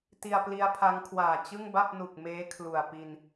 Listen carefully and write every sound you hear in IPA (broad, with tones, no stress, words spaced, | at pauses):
ti˧a̯pli˦˥a̯pʰa˦˥ŋkʰwaː˨˩ t͡ɕɯ˥˩ŋba˥˩p̚nu˨˩k̚ meː˦˥ kʰlu˨˩a̯pi˧n